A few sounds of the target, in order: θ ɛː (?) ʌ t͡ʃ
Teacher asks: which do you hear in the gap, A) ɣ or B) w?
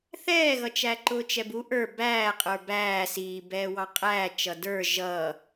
A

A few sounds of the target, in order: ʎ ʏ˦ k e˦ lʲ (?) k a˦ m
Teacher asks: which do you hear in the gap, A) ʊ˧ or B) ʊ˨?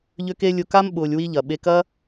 A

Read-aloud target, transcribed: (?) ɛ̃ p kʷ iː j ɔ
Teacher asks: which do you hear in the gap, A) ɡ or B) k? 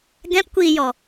A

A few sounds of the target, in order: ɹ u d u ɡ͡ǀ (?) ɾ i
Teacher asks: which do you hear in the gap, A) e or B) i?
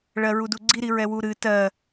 B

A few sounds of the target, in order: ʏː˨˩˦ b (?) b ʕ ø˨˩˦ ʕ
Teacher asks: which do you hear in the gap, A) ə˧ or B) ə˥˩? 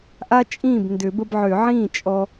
A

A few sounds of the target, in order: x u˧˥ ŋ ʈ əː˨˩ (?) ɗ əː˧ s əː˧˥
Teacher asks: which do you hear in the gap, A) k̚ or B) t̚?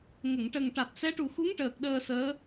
A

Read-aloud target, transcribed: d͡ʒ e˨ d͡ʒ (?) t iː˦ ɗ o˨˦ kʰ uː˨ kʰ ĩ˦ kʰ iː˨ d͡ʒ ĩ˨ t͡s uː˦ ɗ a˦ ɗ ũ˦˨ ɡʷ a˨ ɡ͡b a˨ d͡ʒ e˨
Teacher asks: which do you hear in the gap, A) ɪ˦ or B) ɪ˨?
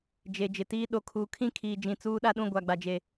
B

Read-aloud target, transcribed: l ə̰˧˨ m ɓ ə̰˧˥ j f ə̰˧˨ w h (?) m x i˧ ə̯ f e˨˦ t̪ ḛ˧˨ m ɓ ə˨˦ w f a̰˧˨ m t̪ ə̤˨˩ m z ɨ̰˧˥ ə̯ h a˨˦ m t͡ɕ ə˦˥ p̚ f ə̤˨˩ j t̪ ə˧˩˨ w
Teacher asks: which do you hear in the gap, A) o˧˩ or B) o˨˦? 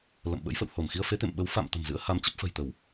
A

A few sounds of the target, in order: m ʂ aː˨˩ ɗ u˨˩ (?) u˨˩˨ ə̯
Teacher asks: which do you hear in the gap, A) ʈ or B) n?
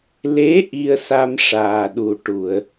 A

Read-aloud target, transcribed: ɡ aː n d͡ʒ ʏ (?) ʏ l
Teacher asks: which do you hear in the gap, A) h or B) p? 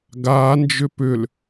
B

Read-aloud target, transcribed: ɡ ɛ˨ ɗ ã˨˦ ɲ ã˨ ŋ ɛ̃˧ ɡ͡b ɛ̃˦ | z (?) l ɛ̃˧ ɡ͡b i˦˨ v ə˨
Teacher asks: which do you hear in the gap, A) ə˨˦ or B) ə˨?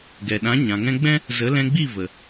A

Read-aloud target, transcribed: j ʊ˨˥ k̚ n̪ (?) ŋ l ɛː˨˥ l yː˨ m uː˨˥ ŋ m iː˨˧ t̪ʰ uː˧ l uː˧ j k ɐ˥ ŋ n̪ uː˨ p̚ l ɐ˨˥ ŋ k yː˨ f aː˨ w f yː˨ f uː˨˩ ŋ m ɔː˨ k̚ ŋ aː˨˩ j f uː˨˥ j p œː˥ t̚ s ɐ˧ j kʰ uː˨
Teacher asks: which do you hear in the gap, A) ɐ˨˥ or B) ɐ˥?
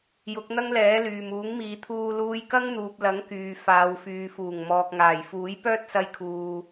B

